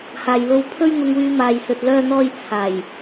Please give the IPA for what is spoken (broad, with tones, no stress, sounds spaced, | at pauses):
h aː˨ j l o˧ w pʰ ɵ˥ ɥ n̪ ʊ˧ ŋ w yː˧ m aː˨ j s ɵ˧ t̚ l œː˥ n̪ ɔː˥ j t͡sʰ aː˨˩ j